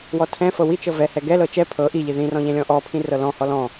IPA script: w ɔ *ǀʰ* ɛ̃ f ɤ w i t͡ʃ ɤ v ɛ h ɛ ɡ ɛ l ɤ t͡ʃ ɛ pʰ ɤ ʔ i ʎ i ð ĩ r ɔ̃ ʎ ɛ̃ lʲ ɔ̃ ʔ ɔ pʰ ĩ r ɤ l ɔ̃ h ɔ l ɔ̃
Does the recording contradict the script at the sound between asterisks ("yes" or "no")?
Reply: yes